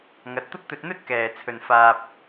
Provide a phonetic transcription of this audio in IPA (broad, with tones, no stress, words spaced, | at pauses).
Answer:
ŋɐ˨˥t̚t̪ʊ˥k̚t̪ɵ˧t̚n̪ɵ˥t̚ kɛː˨ t͡sʰɵ˨nfaː˧p̚